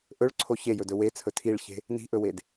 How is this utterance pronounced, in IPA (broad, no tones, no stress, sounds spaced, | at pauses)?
ʔ ɵ ɭ ǀʰ o ç e j ɵ d ɵ w e t͡sʰ ɵ tʰ i ɭ ç e̤ | n i̤ ʔ ɵ w e d